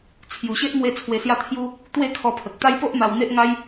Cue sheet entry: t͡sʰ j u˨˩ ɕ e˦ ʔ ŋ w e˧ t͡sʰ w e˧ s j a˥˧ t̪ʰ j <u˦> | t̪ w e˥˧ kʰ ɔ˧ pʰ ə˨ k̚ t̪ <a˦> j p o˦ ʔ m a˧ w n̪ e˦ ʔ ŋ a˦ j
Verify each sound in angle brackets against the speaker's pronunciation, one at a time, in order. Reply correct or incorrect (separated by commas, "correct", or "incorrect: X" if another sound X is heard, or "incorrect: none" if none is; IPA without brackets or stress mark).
correct, correct